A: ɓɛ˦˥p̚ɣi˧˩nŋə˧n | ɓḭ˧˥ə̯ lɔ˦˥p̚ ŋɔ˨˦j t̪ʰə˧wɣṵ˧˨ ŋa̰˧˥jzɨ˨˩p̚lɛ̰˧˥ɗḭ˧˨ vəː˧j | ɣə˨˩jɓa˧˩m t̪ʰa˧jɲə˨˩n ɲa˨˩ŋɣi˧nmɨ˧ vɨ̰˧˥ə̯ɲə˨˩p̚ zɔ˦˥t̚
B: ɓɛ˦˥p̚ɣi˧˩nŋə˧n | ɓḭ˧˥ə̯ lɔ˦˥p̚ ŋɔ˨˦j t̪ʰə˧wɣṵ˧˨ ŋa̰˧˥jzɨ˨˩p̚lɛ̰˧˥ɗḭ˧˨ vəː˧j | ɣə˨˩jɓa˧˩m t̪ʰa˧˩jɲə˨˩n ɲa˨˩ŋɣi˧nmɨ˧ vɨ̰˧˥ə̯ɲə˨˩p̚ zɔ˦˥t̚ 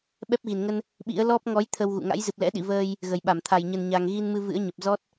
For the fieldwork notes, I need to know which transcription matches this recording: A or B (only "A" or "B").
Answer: B